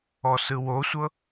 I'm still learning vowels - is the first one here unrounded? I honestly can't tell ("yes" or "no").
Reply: no